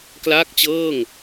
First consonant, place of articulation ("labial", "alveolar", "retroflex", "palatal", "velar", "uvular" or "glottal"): velar